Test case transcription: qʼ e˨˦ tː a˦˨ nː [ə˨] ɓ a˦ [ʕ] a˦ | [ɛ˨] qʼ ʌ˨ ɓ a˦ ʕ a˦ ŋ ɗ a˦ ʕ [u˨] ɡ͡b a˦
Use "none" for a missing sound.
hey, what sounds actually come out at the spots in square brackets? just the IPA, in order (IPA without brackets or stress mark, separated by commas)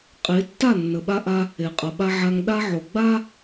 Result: ə˨, ʔ, e˨, o˨